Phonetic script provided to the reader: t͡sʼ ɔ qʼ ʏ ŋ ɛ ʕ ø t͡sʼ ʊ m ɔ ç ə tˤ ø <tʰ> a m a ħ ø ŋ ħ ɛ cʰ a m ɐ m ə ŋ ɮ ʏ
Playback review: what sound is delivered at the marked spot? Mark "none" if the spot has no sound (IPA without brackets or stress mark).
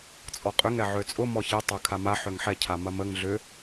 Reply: kʰ